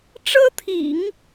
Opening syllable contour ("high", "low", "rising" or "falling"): high